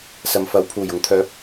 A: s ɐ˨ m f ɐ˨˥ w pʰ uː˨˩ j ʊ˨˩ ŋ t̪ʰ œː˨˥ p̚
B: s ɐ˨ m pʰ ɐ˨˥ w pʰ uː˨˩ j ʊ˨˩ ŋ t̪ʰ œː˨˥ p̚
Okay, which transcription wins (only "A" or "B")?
A